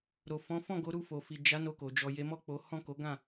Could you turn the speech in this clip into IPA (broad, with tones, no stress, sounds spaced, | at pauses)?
ɾ o˨ f ɔ̃˨˦ f ɔ̃˦˨ ɡ o˨˦ ɾ u˧ f o˨ f i˨ d͡ʒ a˨˦ n o˧ k o˨ d͡ʒ ɔ˨ j e˨˦ m ɔ˦˨ k͡p o˨˦ h ɔ̃˦˨ k o˨˦ ɡ ã˦˨